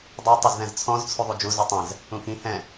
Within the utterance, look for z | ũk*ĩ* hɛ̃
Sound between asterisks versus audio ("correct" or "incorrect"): correct